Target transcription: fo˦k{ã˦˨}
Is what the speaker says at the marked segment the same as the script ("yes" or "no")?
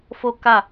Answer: no